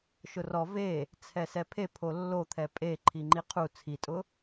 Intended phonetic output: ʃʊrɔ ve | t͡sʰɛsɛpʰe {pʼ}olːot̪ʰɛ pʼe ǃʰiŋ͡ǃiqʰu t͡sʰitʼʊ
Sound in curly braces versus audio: incorrect: pʰ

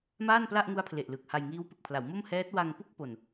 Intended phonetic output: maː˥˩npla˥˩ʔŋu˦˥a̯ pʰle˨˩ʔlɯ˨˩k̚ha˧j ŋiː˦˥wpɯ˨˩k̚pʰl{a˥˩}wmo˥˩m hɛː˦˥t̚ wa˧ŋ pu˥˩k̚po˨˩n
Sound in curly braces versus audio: incorrect: a˩˦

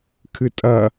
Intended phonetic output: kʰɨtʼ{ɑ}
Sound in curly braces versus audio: incorrect: ɐ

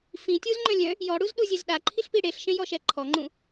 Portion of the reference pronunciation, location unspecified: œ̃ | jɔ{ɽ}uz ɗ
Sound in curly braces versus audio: correct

